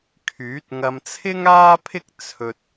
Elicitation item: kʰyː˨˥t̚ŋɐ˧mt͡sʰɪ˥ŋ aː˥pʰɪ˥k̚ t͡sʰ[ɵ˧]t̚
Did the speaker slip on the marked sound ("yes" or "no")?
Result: no